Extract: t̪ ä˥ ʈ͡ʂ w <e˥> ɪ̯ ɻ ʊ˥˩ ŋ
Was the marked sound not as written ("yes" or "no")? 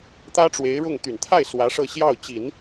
yes